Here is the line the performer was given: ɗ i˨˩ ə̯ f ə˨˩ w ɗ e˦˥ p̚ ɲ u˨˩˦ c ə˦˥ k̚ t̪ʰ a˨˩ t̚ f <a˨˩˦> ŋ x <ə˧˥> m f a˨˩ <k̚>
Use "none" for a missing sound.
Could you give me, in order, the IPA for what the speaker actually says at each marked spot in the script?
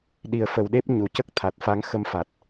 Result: a˧˥, ə˧, t̚

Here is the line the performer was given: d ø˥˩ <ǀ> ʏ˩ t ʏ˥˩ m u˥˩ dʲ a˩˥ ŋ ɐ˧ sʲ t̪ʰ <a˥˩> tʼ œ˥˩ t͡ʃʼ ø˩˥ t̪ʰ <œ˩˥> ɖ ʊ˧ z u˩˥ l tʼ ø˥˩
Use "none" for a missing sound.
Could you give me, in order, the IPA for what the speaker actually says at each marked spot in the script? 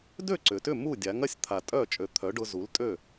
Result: ǀ, a˩, œ˩˥

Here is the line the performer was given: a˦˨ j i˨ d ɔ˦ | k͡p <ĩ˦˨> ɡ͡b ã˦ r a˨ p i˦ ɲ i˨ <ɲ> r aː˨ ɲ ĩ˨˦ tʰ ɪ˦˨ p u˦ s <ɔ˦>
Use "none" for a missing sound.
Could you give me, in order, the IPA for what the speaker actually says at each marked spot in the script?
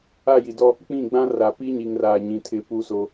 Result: ĩ˦˨, ŋ, o˦

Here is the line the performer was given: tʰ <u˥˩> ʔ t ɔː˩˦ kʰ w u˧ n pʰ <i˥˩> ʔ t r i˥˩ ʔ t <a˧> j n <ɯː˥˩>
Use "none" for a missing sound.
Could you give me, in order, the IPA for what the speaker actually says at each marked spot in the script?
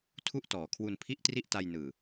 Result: u˥˩, i˥˩, a˧, ɯː˨˩

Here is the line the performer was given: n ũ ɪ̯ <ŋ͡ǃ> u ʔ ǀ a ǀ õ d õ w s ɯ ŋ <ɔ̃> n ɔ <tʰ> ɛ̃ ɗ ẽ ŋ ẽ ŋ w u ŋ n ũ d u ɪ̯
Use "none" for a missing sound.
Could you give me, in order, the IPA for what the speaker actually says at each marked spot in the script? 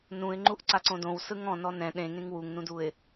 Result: ŋ͡ǃ, ɔ̃, n

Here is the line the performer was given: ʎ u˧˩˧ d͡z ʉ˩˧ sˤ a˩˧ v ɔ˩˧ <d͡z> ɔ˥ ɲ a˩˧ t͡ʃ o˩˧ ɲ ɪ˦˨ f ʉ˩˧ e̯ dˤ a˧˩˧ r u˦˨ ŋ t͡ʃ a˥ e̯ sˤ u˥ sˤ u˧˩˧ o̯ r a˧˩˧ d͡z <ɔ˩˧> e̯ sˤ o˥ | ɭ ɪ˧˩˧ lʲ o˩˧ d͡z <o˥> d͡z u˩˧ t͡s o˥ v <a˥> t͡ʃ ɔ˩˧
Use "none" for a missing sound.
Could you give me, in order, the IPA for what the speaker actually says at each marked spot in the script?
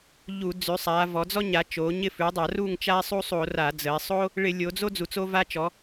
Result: d͡z, ə˩˧, o˥, a˥

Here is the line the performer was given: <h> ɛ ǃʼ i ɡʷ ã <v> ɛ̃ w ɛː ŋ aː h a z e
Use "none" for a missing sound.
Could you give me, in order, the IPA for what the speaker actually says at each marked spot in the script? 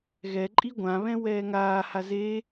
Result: ɣ, β

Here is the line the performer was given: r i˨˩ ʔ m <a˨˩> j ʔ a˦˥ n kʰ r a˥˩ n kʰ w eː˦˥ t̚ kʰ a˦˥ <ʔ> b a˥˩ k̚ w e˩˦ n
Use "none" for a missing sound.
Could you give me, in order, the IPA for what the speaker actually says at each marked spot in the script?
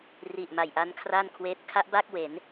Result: a˨˩, ʔ

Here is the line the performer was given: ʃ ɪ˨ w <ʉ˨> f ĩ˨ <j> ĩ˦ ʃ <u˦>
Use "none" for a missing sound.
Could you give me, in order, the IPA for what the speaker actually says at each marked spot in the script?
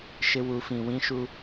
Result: u˨, w, u˦

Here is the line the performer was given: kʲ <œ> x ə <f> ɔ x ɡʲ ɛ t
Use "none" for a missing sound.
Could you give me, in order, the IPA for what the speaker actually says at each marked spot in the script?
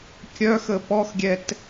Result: œ, p

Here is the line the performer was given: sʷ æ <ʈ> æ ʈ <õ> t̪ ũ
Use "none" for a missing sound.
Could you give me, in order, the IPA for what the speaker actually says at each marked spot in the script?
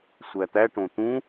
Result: t̪, õ

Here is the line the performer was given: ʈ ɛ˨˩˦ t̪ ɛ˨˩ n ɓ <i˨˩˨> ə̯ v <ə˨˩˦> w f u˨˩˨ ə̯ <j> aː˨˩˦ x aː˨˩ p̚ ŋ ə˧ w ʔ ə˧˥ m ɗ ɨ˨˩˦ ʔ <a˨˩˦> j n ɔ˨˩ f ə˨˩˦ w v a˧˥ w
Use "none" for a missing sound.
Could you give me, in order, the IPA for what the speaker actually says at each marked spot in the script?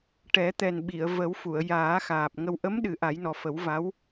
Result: i˨˩˨, ə˨˩˦, j, a˨˩˦

